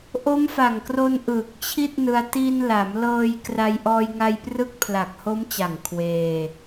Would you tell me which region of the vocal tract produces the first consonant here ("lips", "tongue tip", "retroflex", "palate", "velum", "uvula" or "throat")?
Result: throat